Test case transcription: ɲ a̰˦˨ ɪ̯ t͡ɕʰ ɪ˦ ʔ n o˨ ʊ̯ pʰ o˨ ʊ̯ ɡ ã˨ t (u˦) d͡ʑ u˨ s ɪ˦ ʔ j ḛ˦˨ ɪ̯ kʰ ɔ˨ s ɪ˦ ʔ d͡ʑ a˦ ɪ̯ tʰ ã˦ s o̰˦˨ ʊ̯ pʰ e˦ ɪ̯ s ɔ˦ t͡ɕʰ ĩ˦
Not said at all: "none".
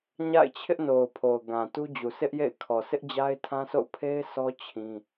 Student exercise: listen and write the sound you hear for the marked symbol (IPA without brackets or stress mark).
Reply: u˦